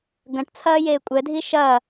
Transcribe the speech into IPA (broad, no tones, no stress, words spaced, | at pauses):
ɡɐ̃ʈt͡sʰɐːjeː kʷʼɛdʱi ʃɐː